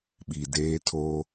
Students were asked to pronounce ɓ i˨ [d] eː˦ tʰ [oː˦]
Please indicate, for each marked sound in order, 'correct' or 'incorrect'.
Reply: correct, correct

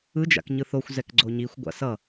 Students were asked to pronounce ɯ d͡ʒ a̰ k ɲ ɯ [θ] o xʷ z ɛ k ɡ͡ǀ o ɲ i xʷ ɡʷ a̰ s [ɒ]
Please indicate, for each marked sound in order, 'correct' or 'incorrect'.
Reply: correct, incorrect: ʌ

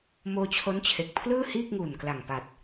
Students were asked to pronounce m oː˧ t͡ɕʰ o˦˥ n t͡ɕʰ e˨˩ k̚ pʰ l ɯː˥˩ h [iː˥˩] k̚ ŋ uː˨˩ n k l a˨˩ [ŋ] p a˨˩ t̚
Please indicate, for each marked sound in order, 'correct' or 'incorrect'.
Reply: correct, correct

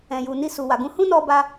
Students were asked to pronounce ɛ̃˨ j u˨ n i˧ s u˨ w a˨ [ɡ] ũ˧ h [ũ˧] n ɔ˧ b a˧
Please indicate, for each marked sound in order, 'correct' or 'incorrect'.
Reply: correct, incorrect: ũ˦

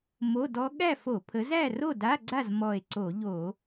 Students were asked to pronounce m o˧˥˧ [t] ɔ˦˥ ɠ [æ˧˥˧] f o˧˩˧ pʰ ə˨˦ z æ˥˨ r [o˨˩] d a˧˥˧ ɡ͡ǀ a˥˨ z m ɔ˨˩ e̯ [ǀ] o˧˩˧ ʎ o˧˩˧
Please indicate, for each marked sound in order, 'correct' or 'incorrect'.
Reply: incorrect: d, incorrect: æ˥˨, incorrect: o˥˨, correct

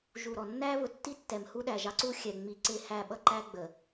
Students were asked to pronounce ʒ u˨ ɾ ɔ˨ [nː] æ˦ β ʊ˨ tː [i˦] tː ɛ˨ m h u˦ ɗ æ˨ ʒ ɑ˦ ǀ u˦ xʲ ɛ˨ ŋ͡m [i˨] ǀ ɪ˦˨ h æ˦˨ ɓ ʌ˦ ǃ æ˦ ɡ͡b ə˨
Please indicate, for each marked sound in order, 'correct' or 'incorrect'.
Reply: correct, correct, correct

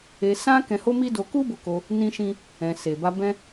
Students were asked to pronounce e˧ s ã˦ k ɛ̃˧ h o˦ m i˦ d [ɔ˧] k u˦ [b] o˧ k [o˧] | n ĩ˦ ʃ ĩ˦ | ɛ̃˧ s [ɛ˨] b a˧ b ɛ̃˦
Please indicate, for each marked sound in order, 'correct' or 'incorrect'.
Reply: incorrect: o˧, correct, correct, incorrect: e˨

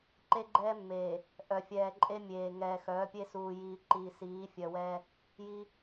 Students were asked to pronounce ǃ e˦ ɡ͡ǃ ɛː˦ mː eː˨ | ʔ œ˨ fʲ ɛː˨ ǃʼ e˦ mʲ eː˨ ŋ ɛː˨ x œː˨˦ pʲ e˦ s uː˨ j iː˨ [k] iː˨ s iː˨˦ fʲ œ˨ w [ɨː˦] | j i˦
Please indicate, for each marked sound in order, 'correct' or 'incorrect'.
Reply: incorrect: ǃ, incorrect: ɛː˦

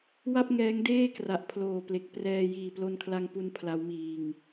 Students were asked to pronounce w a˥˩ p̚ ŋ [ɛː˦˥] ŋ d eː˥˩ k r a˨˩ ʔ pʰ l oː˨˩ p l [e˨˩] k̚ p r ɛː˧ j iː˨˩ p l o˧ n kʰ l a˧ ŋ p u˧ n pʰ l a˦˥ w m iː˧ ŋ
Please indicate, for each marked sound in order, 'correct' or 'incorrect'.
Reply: correct, correct

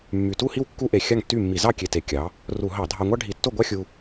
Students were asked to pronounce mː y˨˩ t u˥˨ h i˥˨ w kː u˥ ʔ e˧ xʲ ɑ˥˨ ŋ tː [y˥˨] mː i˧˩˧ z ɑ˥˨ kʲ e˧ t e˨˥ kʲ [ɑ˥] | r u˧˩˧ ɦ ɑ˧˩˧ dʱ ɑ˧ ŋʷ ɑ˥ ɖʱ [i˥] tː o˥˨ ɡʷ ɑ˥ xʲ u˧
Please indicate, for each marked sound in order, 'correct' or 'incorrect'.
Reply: correct, incorrect: ɑ˨˥, incorrect: i˧˩˧

